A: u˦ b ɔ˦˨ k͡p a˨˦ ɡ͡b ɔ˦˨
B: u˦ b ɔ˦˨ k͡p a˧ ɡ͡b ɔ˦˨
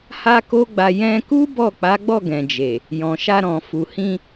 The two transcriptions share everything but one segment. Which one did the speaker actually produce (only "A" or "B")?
A